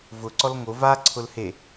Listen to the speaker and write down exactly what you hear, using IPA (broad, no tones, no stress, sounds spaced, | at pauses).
v ʊ ǀ ɔ l ŋ o v a ǀʰ ʊ l h e